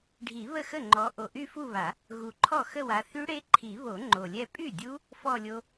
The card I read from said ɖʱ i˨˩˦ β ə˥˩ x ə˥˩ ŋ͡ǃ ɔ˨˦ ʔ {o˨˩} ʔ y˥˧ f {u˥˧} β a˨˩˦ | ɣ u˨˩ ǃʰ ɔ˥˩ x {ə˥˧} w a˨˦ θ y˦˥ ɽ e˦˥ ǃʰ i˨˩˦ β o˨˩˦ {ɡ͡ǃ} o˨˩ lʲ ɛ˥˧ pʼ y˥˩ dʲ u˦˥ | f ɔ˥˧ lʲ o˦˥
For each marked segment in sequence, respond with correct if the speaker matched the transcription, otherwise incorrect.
correct, correct, correct, incorrect: ŋ͡ǃ

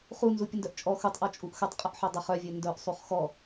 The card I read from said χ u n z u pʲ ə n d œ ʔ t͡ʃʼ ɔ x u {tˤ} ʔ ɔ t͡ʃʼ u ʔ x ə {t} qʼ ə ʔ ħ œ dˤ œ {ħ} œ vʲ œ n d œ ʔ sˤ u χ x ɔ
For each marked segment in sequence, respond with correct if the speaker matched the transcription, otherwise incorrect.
correct, incorrect: tˤ, incorrect: χ

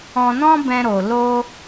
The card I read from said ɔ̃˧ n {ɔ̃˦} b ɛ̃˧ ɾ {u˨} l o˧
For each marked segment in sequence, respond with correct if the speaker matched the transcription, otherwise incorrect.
correct, incorrect: o˨

